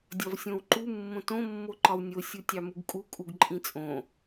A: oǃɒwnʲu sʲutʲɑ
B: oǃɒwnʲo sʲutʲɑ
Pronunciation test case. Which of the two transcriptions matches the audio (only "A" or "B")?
B